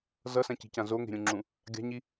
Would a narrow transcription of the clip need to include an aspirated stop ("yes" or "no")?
no